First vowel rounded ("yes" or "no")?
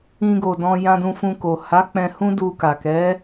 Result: no